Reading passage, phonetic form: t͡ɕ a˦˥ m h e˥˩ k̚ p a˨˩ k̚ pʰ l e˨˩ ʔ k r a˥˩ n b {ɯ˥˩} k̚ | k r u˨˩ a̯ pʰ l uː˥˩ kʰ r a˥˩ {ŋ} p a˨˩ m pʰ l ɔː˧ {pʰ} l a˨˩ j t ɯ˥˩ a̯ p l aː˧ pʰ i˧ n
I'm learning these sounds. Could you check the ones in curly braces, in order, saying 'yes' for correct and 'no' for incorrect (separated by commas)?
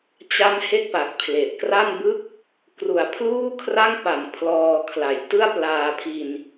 yes, yes, no